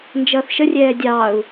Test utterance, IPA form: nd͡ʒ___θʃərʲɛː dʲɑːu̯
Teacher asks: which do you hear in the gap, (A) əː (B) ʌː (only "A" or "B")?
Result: B